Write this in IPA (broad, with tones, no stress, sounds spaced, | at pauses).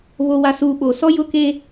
β o˨ w a˨ s uː˨ ɓ o˨ s ɔ˦ j ʊ˦ k e˦